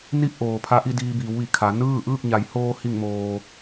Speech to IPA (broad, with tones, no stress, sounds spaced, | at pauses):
n i˥˨ p̚ ʔ oː˩ pʰ a˧ ʔ i˥˨ d iː˧ b iː˩˧ w ʋ i˩ kʰ a˩˧ n ɯː˥˨ ʔ ɯː˥˨ k̚ ɲ a˩˧ j h oː˧ h i˧˩ ŋ m oː˩